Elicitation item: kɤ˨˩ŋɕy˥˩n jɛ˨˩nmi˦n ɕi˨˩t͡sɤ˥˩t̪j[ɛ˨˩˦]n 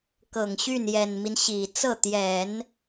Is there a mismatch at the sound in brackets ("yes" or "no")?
no